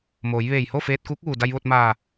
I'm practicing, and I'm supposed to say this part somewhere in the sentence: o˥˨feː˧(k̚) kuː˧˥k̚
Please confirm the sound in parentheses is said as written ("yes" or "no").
no